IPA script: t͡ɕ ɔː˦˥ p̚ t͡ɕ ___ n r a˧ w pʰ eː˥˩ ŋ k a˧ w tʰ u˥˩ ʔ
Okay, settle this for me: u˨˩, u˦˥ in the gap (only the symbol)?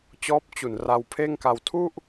u˨˩